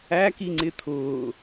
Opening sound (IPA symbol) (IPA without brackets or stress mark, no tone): æ